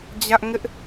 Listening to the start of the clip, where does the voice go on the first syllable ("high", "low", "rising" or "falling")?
high